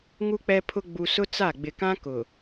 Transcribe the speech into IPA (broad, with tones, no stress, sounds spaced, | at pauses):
ŋ u˨ k͡p ɛ˨ pʰ ʊ˨ ɡ͡b u˨ s ʊ˦ t͡s a˦˨ ɡ͡b ɪ˨ k ã˦ k ʊ˨